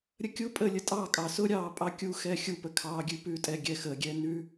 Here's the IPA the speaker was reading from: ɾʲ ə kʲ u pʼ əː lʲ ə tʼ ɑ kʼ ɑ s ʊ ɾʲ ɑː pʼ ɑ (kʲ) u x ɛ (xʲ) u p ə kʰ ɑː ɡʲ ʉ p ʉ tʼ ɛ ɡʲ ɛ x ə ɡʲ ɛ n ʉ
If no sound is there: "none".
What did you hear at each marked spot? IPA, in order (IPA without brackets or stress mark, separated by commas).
kʲ, xʲ